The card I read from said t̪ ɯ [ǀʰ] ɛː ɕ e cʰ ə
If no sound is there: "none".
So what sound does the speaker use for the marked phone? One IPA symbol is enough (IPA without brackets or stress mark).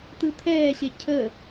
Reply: t̪ʰ